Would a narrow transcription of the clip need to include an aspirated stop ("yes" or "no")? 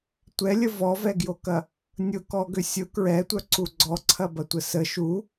yes